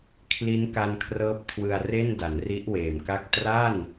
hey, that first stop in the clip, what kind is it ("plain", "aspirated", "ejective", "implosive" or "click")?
aspirated